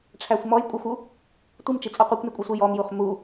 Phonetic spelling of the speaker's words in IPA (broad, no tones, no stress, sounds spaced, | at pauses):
ʈ͡ʂʰ æ xʷ m ɔ j kʷʼ ɘ xʷ u | tʷ i m t͡ʃ i t͡sʼ ɔ qʷ i kʷ n i kʷʼ i sʷ i j ɔ m j u χ m u